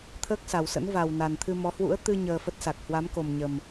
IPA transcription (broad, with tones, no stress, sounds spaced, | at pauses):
t̪ʰ əː˦˥ k̚ s a˨˩ w s ə̰˧˥ n v a˨˩ w n a˨˩ n t̪ʰ ɨ˧ m ɔ˨˦ h w ṵ˧˥ ə̯ t̪ ɨ˧ ɲ əː˧ f ə˦˥ t̚ s a˨˩ k̚ h w a˨˦ m k o˨˩ m ɲ ə˨˩ m